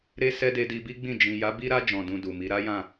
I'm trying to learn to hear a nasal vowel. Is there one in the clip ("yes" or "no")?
yes